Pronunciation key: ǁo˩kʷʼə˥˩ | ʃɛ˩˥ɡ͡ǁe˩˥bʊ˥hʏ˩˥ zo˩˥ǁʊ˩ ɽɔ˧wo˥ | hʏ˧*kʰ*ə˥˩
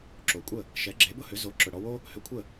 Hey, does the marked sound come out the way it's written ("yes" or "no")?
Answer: no